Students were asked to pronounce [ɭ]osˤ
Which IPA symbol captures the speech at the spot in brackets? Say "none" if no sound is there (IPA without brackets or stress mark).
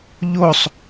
ʎ